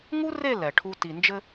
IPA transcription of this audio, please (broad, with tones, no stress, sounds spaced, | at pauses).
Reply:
ŋ u˦ r e˦˨ l ɛ˨ ʈʰ u˦ t i˨ n d͡ʒ ɘ˦